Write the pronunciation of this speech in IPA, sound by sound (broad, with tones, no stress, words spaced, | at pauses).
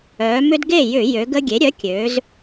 œː˩˧mʏ˦d ɡe˧˩ jʏ˧˩˧ jø˩˧ɡə˦ɡʲe˩˥ ɾʲœ˩˥kʲø˩˧z